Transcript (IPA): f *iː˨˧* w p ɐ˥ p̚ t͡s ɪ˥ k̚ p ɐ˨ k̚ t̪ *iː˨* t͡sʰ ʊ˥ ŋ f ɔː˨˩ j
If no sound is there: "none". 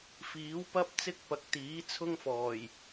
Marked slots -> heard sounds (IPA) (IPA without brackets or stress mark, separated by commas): iː˨˥, iː˨˥